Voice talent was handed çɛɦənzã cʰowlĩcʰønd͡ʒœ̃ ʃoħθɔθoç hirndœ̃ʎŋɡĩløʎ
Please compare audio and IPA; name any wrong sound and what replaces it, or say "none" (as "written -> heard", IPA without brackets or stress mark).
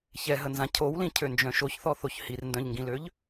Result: ħ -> ç